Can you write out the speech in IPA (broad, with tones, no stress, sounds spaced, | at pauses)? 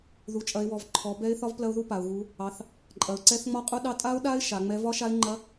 ð u˨˦ t͡ʃʼ ɐ˨˦ ɪ̯ w ɔ˨˦ v ǃʰ ɔ˨˦ b ɛ˦˥ ɪ̯ θ ɒ˦˥ v p l ɐ˦˥ ʊ̯ ð u˦˥ p a˨˦ ʊ̯ ɣ u˦˥ | ɑ˨˦ θ | ǃʼ ɐ˨˦ ʊ̯ ǀ ɛ˦˥ θ ŋ͡m ɒ˦˥ qʼ u˦˥ ɗ ɑ˦˥ tʼ a˦˥ ʊ̯ ɗ a˦˥ ɪ̯ ʃ a˨˦ ŋ͡m ɛ˦˥ v ɒ˦˥ ʃ a˦˥ ɪ̯ ŋ͡ǃ ɐ˦˥